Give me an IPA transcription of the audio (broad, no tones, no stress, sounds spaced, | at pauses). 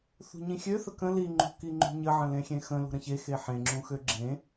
θ ṳ ɲ ĩ xʲ ø θ ə k ə̃ l i ŋ͡ǃ ṳ k i ŋ͡ǃ ṳ ɲ ə ʕ ə̃ l ẽ xʲ ẽ x ə̃ l ṳ ɾ ə̃ ç e x e ħ ẽ ŋ͡ǁ ũ x ø ɡ͡ǁ ẽ